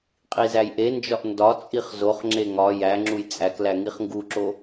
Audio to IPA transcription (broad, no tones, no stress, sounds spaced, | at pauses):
qʼ i z æ j ʔ e n d͡ʒ ɒ ʔ n d ɒ t͡sʼ i χ z o χ ŋ͡ǁ e ŋ ɒ j æ ŋ͡ǁ u j t͡sʼ æ k l æ ŋ i χ ŋ ɡ u ǁ o